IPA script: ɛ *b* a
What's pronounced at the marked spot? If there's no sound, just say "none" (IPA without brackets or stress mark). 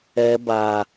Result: b